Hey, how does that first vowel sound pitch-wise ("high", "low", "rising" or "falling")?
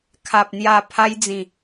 low